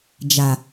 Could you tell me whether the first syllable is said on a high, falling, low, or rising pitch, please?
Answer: low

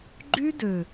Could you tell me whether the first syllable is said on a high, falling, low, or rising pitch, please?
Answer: high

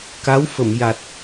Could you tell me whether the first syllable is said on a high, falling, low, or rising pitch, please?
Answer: rising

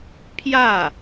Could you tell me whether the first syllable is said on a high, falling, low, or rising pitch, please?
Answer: falling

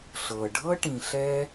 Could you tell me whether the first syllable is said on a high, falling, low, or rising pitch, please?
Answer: low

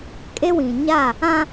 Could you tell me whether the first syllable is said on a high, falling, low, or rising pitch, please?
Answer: high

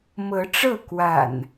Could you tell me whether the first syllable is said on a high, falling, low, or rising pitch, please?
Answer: rising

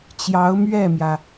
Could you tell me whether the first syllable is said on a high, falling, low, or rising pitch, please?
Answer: rising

